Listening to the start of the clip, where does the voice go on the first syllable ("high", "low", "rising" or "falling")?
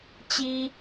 high